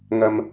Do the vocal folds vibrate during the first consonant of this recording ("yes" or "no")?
yes